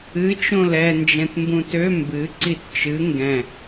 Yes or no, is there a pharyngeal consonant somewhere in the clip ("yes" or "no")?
no